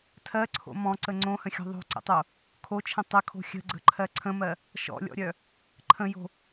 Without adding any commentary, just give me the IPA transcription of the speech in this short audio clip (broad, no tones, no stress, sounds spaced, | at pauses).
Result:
tʰ ɜ ǀʰ o̰ m ɔ̃ ǀ ə ŋ͡ǀ õ h ə̃ xʲ ɔ̤ ðˤ o̤ ǀ ə̰ tˤ o | kʰ o t͡ʃʰ ə̃ tˤ ə kʰ o̤ xʲ ə̤ ɡ͡ǀ ə̤ ǃʰ ɜ ǀʰ ə̃ m ɜ | ʃ ɔ̰ lʲ ɔ̰ ɾʲ œ | ǃʰ ə̃ j o̤